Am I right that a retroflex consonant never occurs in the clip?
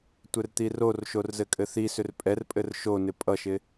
yes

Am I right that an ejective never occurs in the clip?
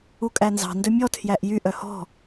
no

